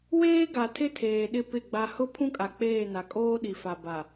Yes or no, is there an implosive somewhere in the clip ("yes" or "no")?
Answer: yes